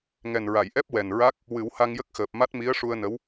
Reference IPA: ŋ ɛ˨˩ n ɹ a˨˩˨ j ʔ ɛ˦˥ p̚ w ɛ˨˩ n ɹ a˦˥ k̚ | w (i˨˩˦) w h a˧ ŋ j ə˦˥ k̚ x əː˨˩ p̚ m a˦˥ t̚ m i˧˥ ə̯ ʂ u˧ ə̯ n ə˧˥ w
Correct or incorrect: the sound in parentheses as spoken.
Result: incorrect: ɨ˨˩˦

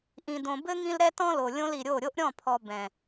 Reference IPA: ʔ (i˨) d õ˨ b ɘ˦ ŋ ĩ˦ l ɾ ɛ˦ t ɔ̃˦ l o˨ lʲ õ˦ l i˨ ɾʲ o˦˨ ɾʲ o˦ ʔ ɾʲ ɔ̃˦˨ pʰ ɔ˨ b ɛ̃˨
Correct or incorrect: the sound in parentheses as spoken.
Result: incorrect: ĩ˨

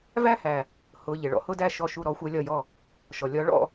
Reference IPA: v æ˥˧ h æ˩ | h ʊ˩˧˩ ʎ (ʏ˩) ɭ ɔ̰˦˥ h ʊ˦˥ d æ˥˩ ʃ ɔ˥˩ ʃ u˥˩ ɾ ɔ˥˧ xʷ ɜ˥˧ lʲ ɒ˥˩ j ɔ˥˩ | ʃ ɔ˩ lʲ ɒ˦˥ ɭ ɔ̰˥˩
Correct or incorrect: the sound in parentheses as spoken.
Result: incorrect: ɪ˩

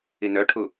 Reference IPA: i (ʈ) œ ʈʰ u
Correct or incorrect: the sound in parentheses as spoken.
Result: incorrect: n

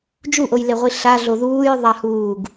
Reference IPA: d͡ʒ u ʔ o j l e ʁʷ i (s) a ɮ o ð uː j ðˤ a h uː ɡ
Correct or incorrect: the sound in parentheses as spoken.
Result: incorrect: ɬ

